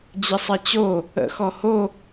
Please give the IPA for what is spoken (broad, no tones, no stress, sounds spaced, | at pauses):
d͡ʑ ɪ sˤ e t͡ɕ o | ə̰ x ɔ h o